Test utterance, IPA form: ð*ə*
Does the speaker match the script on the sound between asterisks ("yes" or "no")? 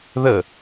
yes